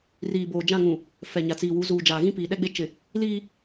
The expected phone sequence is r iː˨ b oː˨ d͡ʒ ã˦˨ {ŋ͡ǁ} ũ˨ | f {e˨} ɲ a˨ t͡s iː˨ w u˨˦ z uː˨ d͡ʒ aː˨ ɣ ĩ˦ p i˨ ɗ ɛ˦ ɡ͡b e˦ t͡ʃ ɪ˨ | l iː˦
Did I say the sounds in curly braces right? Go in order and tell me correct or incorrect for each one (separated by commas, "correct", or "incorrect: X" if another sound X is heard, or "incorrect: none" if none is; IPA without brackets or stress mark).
incorrect: ŋ, incorrect: ɛ˨